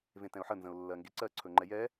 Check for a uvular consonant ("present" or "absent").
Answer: absent